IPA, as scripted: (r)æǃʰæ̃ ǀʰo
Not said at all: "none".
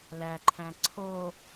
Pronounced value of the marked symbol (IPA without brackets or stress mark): l